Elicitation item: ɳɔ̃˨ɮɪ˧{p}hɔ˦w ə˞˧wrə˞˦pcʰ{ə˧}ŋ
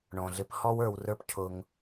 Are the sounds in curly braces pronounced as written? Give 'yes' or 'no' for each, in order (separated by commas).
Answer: yes, no